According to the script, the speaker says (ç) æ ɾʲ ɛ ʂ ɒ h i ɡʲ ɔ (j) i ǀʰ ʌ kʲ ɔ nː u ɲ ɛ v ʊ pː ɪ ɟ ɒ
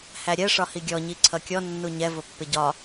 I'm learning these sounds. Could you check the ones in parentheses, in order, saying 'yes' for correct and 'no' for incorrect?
no, no

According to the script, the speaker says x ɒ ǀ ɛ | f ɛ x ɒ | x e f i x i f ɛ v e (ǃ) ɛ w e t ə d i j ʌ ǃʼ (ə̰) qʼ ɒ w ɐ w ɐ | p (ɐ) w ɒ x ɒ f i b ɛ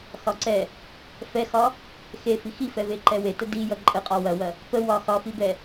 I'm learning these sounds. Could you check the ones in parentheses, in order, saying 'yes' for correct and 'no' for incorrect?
yes, no, no

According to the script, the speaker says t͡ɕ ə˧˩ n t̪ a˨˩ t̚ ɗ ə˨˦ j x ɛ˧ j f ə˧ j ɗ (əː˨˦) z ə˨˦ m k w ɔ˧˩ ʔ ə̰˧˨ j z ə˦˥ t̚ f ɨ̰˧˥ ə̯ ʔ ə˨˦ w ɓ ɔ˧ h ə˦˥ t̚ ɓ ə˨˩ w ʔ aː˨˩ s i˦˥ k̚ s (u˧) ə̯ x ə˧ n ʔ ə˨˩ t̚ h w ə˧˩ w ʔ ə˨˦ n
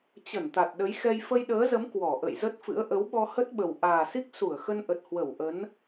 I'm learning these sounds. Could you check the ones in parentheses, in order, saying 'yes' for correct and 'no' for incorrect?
yes, no

